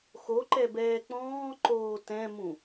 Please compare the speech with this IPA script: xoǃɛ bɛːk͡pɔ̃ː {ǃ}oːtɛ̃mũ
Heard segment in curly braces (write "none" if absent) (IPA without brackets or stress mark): ǃ